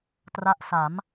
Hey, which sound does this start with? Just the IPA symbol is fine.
t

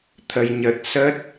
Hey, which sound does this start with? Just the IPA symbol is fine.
t̪ʰ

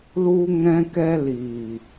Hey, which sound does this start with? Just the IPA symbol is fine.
l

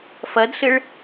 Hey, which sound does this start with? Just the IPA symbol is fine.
f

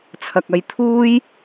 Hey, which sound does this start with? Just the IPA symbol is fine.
t͡sʰ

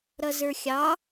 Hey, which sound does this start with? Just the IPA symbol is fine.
ɾ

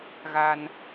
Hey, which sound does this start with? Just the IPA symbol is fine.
ɣ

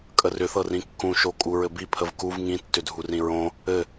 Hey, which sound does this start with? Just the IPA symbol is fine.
kʼ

